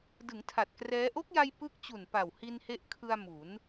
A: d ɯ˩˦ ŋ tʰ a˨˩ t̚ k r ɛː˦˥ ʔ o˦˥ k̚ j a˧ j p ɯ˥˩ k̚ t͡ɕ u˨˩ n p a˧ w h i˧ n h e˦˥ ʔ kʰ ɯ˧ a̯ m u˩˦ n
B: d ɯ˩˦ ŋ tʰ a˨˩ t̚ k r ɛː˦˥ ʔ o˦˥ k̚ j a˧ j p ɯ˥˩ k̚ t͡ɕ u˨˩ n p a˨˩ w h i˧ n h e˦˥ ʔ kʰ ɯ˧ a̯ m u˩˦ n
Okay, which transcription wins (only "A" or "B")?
B